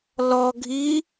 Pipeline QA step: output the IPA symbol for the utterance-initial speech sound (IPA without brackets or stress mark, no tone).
l